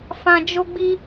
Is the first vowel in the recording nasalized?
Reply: yes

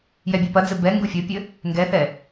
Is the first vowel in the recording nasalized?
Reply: no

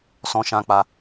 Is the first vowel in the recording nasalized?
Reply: yes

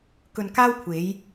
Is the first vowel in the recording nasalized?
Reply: no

